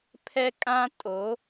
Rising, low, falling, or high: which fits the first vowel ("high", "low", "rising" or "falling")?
high